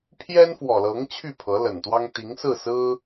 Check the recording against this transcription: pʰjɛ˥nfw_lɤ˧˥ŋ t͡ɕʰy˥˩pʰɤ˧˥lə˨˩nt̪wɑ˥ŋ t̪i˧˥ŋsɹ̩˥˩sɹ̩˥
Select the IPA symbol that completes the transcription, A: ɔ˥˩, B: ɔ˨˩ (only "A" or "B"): B